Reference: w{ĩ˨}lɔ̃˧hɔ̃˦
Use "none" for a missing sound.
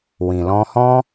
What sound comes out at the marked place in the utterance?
ĩ˨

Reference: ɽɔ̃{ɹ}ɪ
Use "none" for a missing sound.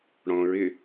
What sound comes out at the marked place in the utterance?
ɹ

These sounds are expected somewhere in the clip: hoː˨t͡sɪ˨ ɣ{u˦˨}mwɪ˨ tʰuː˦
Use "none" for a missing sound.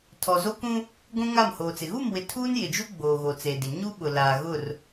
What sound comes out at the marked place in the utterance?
u˦˨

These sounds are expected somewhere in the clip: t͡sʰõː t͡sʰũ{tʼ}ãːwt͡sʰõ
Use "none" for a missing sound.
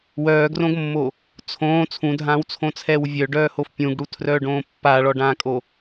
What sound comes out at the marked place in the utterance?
dʱ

